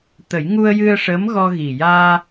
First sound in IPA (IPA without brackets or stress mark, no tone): t̪